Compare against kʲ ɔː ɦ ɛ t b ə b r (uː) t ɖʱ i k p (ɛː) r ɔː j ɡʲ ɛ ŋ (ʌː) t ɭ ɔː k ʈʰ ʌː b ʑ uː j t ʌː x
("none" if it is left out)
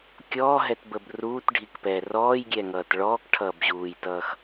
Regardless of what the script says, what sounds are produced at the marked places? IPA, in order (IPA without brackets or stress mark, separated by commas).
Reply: uː, ɛː, ʌː